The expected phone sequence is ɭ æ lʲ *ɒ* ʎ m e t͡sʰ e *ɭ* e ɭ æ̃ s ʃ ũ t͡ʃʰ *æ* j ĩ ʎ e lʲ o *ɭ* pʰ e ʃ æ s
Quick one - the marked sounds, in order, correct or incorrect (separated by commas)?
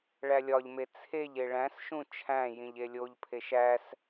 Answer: correct, incorrect, incorrect, incorrect